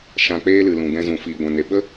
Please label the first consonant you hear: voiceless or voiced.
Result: voiceless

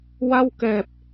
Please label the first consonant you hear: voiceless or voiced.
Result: voiced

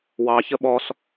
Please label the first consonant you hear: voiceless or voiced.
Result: voiced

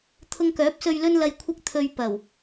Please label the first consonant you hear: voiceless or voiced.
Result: voiceless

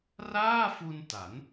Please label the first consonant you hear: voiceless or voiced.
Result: voiced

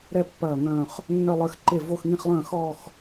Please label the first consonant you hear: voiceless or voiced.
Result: voiced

